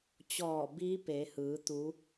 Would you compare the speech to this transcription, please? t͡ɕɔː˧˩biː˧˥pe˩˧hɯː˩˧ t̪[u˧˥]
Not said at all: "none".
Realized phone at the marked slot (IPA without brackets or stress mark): u˧˥